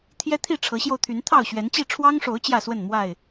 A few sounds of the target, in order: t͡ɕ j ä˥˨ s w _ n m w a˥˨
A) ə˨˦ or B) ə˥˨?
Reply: B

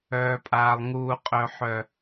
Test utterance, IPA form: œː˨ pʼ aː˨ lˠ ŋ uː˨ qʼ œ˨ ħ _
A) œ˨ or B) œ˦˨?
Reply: A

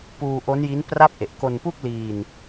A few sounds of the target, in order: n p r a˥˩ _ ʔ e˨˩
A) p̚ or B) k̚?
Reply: A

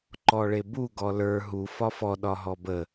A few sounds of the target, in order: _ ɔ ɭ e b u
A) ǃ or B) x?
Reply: A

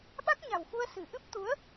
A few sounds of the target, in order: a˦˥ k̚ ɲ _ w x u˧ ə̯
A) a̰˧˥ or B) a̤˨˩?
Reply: B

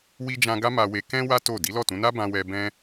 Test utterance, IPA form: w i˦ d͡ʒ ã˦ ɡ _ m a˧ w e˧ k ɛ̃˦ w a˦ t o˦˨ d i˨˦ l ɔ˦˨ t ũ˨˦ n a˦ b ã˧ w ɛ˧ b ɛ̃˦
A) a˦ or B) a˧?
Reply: A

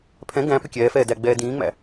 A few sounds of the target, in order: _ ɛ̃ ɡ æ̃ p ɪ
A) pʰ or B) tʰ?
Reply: A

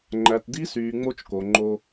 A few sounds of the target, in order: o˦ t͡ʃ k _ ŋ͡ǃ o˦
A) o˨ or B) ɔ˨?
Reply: A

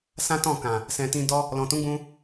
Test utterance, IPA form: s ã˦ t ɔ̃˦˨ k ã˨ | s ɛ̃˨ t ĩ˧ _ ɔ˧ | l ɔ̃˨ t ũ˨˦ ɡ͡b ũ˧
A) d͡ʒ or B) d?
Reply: B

